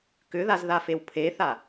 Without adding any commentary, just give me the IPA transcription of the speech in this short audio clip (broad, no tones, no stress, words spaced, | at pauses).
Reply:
kʏðazðafew pʰeθa